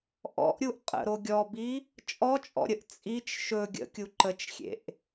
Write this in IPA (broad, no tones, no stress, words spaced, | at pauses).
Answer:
ʔɔ̰ʔɾʲuʔ qʼə̰ɾo ɡʲɔbi | t͡ʃʼɔt͡ʃʼɔ̰ɾʲəʔ t͡sʼit͡ʃ ʃɵ ɡʲə̰kʲu ǃət͡ʃxʲḛʔ